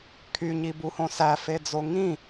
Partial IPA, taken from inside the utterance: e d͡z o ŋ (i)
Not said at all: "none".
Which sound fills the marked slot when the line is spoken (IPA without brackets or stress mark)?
ĩ